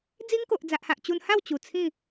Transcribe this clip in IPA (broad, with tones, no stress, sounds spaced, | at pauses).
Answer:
d͡z i˦ ŋ k o˨ ʔ d͡z a˨ ʔ h a˨ ʔ t͡ɕ u˧ n h a˥˧ w t͡ɕ u˨˩ t͡sʰ ĩ˥˧